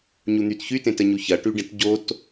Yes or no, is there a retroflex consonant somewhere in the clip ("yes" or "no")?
yes